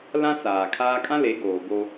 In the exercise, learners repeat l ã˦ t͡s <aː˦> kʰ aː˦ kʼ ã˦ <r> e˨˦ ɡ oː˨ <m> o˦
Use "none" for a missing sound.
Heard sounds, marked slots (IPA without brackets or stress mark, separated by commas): aː˨, l, b